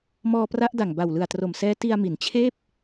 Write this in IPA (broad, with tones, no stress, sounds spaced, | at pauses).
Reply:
m ɔː˧ p r a˦˥ ʔ d a˨˩ ŋ b a˨˩ w l ɯ˨˩ a̯ t r o˨˩ m s ɛː˦˥ t i˧ a̯ m i˩˦ n t͡ɕʰ eː˥˩ p̚